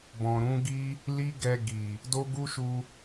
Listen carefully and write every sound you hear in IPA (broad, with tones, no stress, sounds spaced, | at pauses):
b ɔ̃˨ ɾ ũ˨˦ ɡ i˦ | l i˦ ɡ ɛ˧ ɡ i˨ | d o˦ ɡ u˦ ʃ u˧